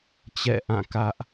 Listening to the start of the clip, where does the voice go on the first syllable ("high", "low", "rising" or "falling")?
falling